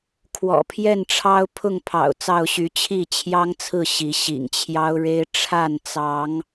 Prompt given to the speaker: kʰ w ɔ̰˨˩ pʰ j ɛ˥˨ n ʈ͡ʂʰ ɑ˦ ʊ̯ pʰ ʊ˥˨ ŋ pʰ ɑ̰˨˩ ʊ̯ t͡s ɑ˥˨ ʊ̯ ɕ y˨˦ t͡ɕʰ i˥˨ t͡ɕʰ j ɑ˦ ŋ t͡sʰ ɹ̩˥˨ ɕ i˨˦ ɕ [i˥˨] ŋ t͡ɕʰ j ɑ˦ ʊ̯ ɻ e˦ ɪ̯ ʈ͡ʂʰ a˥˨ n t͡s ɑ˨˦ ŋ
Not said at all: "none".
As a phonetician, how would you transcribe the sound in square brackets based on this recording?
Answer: ḭ˨˩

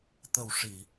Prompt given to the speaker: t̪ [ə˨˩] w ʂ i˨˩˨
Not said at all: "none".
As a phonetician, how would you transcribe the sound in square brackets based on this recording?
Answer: ə˨˩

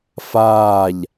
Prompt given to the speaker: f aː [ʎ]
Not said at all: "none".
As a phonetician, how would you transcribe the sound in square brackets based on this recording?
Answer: ʎ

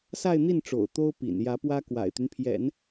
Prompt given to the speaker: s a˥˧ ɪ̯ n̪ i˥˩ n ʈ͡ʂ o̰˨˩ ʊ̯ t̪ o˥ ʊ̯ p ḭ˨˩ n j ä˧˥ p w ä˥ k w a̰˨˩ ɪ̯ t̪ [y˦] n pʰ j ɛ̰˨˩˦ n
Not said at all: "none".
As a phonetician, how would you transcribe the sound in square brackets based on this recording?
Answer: y˦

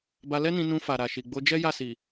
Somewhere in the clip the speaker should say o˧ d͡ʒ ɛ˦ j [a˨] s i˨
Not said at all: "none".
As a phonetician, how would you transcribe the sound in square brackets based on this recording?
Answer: a˦˨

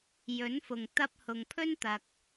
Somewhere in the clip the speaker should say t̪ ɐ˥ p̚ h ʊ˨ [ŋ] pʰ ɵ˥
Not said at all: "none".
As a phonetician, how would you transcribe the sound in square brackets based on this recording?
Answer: ŋ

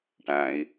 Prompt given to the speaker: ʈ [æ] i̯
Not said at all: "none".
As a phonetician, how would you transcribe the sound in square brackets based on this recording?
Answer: æ̃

